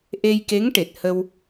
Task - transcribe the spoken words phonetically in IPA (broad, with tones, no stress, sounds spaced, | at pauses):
ʔ e˧ j k e˧˥ ŋ ʈ e˨˩ t̚ h ə˧ w